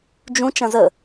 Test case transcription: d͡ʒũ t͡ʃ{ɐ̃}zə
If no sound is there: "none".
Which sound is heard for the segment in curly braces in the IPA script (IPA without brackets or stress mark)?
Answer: ɐ̃